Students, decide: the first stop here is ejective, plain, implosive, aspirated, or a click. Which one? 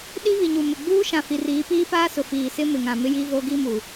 implosive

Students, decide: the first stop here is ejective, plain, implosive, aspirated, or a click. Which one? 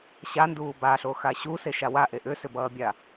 plain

